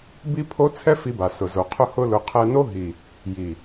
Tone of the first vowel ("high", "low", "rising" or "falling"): high